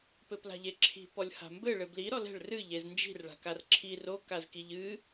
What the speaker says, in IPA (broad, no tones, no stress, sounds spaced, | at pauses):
p ɘ p l a̤ ʎ e ǁʰ i̤ p ɔ lʲ h a̤ m b ɘ ɭ ɘ b l i ɾ ɔ l ɛ̤ ɭ r ɨ ʎ e z n d͡ʒ i̤ r ɭ a̤ k a r ǁʰ i r o k a z k i ʎ ɨ